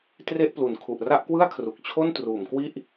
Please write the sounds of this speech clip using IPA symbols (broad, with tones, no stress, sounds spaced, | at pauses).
t r e˥˩ ʔ p l u˨˩ n kʰ u˨˩ ʔ r a˥˩ ʔ k w ɯ˥˩ a̯ kʰ r u˨˩ k̚ t͡ɕʰ o˥˩ n t r uː˩˦ m k w i˥˩ ʔ